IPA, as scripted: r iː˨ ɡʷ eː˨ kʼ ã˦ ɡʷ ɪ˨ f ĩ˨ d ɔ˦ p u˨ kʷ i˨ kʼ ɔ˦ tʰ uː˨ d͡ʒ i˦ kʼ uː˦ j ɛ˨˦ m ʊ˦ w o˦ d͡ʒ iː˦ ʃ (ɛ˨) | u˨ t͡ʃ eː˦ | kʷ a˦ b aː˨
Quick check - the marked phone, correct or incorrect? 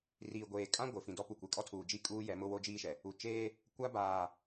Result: correct